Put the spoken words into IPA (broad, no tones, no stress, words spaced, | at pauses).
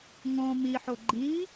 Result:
ŋõ miħo ɡ͡ǃi